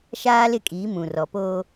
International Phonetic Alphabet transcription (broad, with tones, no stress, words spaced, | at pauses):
ʃaː˦lɪ˦˨kʼiː˨˦ mũ˨rɔ˨ poː˦